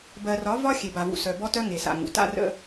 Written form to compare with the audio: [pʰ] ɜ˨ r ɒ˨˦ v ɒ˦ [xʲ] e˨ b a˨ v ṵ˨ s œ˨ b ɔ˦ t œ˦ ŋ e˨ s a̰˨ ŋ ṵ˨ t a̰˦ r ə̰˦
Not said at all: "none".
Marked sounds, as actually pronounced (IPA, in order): b, xʲ

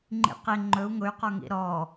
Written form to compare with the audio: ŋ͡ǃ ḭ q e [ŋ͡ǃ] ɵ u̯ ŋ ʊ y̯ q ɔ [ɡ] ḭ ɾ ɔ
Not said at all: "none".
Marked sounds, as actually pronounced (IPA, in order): ŋ͡ǃ, ŋ

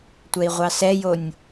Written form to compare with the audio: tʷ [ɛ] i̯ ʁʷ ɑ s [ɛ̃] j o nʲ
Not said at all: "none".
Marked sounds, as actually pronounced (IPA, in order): ɛ, ɛ

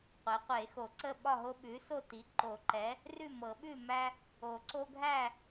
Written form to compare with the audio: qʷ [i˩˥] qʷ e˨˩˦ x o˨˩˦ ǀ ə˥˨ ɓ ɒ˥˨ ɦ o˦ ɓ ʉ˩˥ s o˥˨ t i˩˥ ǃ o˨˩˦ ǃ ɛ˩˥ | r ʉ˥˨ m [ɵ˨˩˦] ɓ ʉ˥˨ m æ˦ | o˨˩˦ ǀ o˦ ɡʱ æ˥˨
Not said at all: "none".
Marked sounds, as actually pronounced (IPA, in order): e˩˥, ɤ˨˩˦

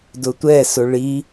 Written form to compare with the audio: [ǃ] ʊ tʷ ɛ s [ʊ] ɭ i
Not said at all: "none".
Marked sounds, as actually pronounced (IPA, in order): d, ʊ

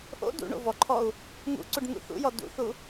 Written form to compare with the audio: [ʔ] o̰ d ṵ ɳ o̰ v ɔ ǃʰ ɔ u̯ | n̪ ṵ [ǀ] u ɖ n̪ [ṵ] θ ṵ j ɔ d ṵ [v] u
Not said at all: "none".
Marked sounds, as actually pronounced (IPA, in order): ʔ, ǀ, ṵ, θ

